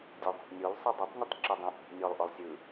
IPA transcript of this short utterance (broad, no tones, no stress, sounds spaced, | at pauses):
dʲ o ðˤ o̤ ʔ nʲ o l sˤ ɯ dˤ ɤ tˤ nʲ ɯ tˤ ǁ o dˤ õ ʔ i̤ ʔ nʲ ɔ lˠ ʔ ɔ lˠ sʲ ɯ